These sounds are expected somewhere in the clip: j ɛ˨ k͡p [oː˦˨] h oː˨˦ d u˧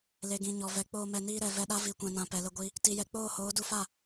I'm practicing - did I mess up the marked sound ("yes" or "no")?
no